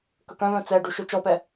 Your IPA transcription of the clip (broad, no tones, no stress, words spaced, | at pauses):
kɵkœ̃vœ̃ t͡sɛɖu ʃøt͡ʃɔpɛ